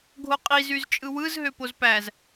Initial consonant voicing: voiced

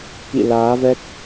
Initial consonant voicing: voiceless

